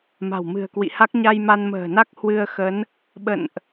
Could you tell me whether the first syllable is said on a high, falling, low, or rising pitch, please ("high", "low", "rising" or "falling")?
low